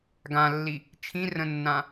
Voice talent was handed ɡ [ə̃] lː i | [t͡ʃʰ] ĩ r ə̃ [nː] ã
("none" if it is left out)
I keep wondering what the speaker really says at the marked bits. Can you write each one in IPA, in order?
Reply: ã, t͡ʃʰ, nː

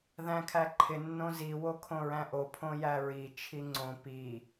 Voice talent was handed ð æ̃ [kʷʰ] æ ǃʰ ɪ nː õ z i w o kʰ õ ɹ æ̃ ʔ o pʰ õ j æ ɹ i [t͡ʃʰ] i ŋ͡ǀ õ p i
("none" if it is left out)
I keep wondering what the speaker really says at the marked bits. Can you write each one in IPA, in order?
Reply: kʰ, t͡ʃʰ

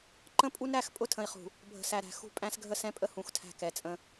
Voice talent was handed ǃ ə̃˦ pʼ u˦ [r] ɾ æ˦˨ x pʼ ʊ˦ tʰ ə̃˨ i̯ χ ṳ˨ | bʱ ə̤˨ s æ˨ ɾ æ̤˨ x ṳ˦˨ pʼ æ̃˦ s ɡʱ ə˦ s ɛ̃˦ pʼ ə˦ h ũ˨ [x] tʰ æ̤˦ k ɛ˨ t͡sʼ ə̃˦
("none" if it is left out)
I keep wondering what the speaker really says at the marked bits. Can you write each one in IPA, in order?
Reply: n, x

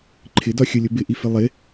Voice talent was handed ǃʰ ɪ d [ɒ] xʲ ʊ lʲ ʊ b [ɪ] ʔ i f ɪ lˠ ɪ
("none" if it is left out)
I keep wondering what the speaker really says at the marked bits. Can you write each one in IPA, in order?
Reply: ɒ, ɪ

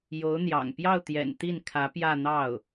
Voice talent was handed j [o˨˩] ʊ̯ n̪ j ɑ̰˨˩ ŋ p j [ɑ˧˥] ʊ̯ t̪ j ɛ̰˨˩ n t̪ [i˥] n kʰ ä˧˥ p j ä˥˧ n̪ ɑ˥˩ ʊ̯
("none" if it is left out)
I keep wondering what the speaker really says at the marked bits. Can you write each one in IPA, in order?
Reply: o˧˥, ɑ˥˩, i˥˩

